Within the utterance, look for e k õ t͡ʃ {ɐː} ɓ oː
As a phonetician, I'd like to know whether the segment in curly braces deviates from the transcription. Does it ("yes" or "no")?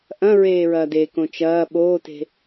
no